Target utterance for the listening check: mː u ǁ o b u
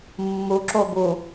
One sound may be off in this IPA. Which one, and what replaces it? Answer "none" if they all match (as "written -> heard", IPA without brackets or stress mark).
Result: none